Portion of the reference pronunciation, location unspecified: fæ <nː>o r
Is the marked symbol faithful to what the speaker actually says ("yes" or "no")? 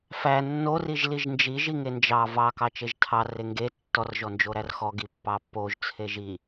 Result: yes